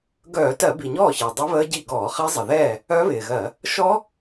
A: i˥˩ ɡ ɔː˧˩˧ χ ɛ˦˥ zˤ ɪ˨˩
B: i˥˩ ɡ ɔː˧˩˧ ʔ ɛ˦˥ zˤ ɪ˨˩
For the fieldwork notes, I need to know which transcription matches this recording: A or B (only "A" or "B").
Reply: A